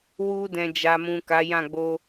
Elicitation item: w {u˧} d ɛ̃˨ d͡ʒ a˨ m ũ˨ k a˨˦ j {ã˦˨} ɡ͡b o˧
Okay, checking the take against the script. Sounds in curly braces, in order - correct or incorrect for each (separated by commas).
correct, correct